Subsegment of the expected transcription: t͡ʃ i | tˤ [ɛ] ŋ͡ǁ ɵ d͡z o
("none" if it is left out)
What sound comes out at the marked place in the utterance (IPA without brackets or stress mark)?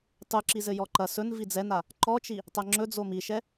ɛ